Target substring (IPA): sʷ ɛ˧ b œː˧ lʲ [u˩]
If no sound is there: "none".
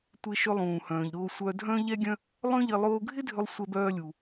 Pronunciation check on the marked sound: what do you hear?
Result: u˩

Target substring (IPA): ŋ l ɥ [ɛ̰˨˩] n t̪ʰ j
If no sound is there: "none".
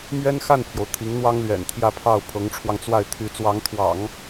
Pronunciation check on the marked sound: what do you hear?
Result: ɛ̰˨˩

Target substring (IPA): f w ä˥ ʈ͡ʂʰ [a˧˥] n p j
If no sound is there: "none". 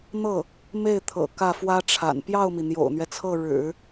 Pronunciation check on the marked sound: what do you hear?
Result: a̰˨˩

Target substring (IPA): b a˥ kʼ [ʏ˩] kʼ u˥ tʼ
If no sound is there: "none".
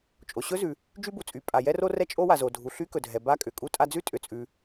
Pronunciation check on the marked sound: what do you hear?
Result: ʏ˩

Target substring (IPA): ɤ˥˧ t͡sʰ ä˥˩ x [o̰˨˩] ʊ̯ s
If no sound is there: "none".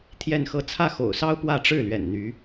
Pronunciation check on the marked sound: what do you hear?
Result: o̰˨˩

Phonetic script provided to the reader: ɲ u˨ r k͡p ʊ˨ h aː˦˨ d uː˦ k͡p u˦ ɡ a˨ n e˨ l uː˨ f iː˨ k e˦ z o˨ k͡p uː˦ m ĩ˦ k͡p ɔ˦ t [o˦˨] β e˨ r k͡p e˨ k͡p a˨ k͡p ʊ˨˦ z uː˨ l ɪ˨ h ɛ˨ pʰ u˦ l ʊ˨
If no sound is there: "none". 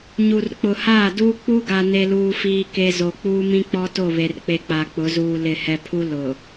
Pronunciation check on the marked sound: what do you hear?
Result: o˦˨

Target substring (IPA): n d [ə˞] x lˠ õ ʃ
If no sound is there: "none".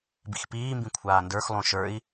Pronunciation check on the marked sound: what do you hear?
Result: ə˞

